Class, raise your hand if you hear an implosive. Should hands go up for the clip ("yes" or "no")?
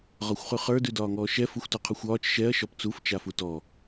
no